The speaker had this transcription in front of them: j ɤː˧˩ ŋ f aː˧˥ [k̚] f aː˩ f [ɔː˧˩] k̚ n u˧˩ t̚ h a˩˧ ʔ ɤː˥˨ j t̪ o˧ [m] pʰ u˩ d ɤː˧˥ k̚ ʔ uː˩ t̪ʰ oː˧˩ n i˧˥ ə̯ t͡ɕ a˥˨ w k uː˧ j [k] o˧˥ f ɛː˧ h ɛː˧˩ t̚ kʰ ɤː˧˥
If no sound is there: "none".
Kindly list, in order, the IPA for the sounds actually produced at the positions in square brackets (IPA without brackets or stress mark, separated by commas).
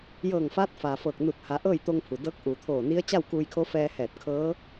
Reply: t̚, ɤː˧˩, ŋ, kʰ